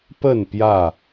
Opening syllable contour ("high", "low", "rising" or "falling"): falling